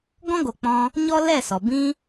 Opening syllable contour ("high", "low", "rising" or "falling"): high